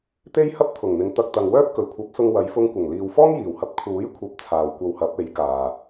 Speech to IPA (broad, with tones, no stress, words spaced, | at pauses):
t̪e˥jhɐ˥p̚t̪ʰʊ˨˩ŋn̪ɪ˨ŋ t̪ɐ˧k̚t̪ɐ˨ŋwœː˥p̚ kɵ˨˩ɥkʷʰɐ˨˥p̚sʊ˧ŋwɐ˨˧j fʊ˧ŋkʷɐ˨˩ŋliː˨w fɔː˥ŋjiː˨˩whɐ˧p̚ kʰuː˨˥jkʷʰɐ˨˥p̚ t͡sʰaː˨wkʷɐ˧w hɐ˨˥p̚e˨˥jkaː˨